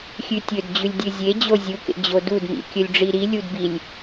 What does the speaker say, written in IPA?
xʲʉtʲɵdd͡ʑʉlʲ dʲɨzʲed͡ʑo zʲuk ḛd͡ʑodudmḭ kʲɵlʲɖ͡ʐiɾilʲud bilʲ

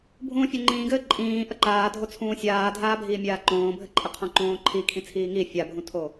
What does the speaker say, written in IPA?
bʱũːfʲoŋ͡ǃĩːɡɘː ǃʼĩː ʔəǃaːdʱo t͡sʰũːsʲaːdʱaːbʱiː mʲaːǃõːbʱɘ ǃʼɘqʰõǃõːǃʰi kʰĩt͡sʰiːŋi fʲabʱũtʰo

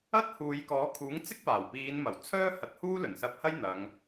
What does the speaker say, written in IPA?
ɐ˥t̚huː˨˧jkɔː˨˥ kʰuː˨˥ŋt͡sɪ˥k̚paː˨˩wpiː˨˧n mɐ˨˩wt͡sʰœː˥ hɐ˧t̚ huː˥lɵ˨˩nsɐ˧p̚hɐ˥j n̪ɐ˨˧ŋ

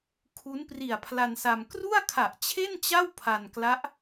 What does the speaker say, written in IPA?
kʰu˦˥n pri˨˩a̯pʰla˧nsa˧m kru˥˩a̯kʰa˨˩ʔt͡ɕʰe˥˩nt͡ɕa˥˩w pʰa˧nkla˦˥ʔ

